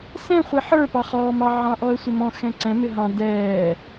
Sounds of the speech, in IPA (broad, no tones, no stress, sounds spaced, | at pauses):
s ɛ̃ χʷ i ħ ə˞ p ɑ χ ɔː m ɑ ʕ ɑ̃ ʔ ɔ ə̯ sʷ ɪ m ɔ̃ x ɛ̃ ǀ ɛ̃ m ɪ ɦ ɑ̃ d ɛː